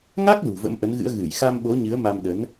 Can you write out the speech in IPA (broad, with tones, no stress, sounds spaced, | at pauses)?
ŋ a˦˥ k̚ l ṳ˨˩ v ə̰˧˥ m ʔ ə˨˦ n ɣ ɨ̰˧˥ ə̯ ɣ ɨ˧˩ j x a˧ m ɓ o˨˦ ɲ ɨ˨˦ ə̯ m a˧ m ɗ ə˨˦ n